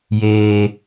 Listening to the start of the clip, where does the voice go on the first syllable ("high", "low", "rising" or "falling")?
high